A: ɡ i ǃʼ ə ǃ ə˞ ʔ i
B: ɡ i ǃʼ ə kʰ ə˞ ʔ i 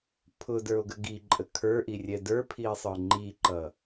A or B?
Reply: B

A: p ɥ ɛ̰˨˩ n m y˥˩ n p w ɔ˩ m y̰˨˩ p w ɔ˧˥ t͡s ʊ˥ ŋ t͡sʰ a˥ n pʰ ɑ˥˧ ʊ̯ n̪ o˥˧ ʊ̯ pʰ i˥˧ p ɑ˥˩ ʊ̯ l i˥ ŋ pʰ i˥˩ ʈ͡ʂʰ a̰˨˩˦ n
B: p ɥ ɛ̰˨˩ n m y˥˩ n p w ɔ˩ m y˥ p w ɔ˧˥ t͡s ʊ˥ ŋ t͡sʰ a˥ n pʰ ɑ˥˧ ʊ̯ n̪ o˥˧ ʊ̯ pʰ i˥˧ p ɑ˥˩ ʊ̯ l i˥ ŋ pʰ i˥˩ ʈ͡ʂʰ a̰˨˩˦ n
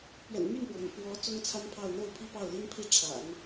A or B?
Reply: A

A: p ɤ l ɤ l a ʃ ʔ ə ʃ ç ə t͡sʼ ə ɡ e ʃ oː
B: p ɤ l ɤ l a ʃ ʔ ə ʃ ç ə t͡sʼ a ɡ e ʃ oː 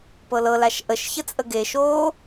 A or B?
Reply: A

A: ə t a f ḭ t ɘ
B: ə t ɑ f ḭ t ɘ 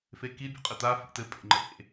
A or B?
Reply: A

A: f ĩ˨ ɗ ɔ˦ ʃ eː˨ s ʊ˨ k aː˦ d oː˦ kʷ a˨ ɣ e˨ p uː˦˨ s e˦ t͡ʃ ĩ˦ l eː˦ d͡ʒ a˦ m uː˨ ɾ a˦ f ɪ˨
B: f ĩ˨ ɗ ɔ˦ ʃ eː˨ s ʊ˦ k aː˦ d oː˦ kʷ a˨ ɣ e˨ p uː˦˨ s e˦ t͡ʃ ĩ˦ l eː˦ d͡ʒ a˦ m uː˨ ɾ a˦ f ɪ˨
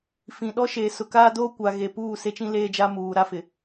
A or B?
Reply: A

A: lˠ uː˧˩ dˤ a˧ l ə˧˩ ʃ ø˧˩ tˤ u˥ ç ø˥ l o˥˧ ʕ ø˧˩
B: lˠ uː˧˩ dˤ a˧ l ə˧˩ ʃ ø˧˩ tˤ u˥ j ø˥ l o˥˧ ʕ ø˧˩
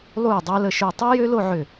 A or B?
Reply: B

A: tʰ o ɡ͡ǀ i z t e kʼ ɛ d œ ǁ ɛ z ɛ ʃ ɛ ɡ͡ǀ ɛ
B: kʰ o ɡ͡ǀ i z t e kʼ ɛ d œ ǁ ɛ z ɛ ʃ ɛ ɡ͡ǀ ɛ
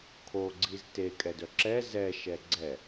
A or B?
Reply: B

